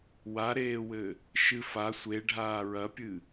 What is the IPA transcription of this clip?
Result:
w a ɾ eː w ɘ | ʃ ɨ f a sʷ e ɖʱ aː ɹ ɐ pʲ ɨ

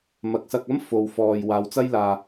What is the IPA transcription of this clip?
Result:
m ɐ˨ k̚ s ɐ˧ k̚ ɐ˥ m f o˨ w f ɔː˨ j w aː˨˧ w t͡s ɐ˥ j l aː˧

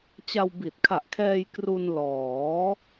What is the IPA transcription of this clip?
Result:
t͡ɕ a˧ w b i˨˩ t̚ kʰ a˨˩ ʔ kʰ ɛː˧ j k r u˧ n l ɔː˩˦

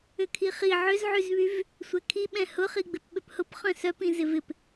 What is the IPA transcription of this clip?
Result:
ʏ kʰ i χ i ʕ ʏ z ʕ y z β y v | sʷ ɛ kʰ i ɓ ɛ̃ h ʊ χ i ɡ͡b ɪ p ɓ ʏ p h ʊ p χ œ̃ s œ p ĩ z ɪ v ɪ p

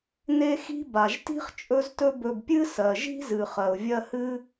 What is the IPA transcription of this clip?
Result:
n e˥ x i̤˥ b a˩ ʒ t i̤˥ χ t͡ʃʼ ɵ˦ z t ɵ˦ b ɵ˨ b pʲ ɨ˦ s ɜ˩ ʒ i̤˥ z ɨ˩ χ ɜ˩ ʊ̯ vʲ ɜ˦ h ɨ˥

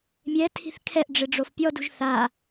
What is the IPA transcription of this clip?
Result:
mʲ ɛ tʰ i̤ θ kʰ ɛ ʔ ɖ͡ʐ ɪ ɖ͡ʐ o f pʲ ɔ d ṳ ʒ θ a

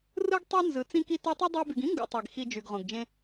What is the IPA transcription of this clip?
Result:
r ɯ˥ ɡ tˤ y˦ n z ɯ˨ t͡s ĩ˦ k i˦ t ø˦ tˤ y˥ dˤ e˦ b y˨ ɡ ĩ˥ ŋ ɡ ṵ˨ tˤ i˩ ɡ x i˨ d͡ʒ y˩ ɡ ʁ õ˩ ɡ d͡ʒ ẽ˦

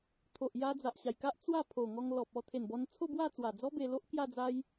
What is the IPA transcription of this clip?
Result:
t̪ʰ o˨ ʔ j a˧ d͡z a˨ ʔ ɕ a˨˩ j k a˦ ʔ t͡s w a˥˧ pʰ o˨˩ ŋ ɔ˧ ŋ l ɔ˨ p̚ ɔ˥˧ t̪ʰ e˨˩ n b ɔ˧ n t͡sʰ o˥˧ b w a˥˧ t͡s w a˨˩ d͡z ɔ˦ b e˧ l o˦ ʔ k j a˥˧ d͡z a˦ j

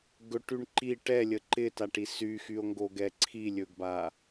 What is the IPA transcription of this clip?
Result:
ɡ ɵ ʈ y ɳ ǃ i ʈ ɛ lʲ ə ǃ ɪ t a ʈ i s y x y o̯ ŋ ɡ o ɡ ɛ ǀʰ i lʲ ɵ ɡ b a

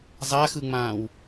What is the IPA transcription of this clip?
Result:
zˤ a x ɯ ŋ͡m ãː w

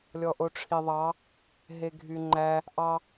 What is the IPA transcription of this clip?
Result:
lʲ ɔ ʔ o ʈ͡ʂʰ i ðˤ ɑ | ɦ e ɡʱ y ŋ͡ǃ æ | ʔ ɑ

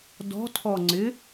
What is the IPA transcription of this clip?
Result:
d ɔ̤ tʰ ɔ ŋ͡ǀ ɪ

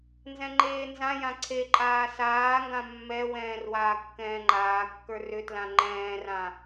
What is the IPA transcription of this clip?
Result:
n z ɛ̃ ŋ͡ǃ eː n z ã j ã ǀʰ e ǃʼ aː s aː ŋ ɡ ã mː ɛ w ɛ̃ː r w aː kː ɛ̃ː ŋ͡ǃ aː kː ə˞ r ʏ t l ã ŋ͡ǃ ɛ̃ː r ã

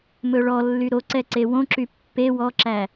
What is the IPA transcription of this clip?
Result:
m ɵ ɭ ɔ lː y ɾ o ǀ ɛ ǀ e w õ ǁ y pː e w ɔ ǁ æ

